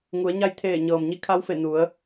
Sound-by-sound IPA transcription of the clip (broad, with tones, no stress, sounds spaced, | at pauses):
ŋ u˩˧ ə̯ ɲ a˥˨ j t̪ʰ eː˧˩ ɲ ɤː˩ m ɲ i˧ kʰ a˧˥ w f e˧˩ n u˩˧ ə̯